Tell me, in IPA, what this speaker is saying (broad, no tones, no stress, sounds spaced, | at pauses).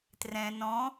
t r ɛ̃ n ɔ̃